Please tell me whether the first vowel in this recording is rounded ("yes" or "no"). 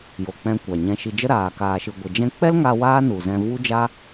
yes